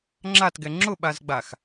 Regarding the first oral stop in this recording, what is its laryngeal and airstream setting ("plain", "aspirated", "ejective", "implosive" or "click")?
click